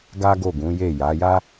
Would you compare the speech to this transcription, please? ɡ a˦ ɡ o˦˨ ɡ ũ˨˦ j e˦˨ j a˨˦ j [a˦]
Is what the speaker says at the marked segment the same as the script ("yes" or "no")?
yes